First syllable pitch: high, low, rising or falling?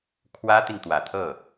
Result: high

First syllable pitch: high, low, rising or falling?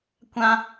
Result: high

